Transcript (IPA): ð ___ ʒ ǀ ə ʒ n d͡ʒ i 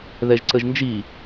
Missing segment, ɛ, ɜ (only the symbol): ɛ